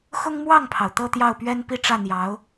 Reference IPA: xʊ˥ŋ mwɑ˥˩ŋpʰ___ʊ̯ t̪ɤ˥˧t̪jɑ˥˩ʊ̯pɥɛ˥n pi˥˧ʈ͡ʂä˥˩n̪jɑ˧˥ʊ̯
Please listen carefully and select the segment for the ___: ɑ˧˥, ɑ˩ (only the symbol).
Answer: ɑ˩